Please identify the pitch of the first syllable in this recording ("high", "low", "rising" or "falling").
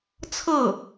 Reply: falling